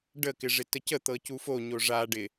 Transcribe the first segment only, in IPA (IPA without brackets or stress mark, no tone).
ɖ